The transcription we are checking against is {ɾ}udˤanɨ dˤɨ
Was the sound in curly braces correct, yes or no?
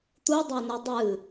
no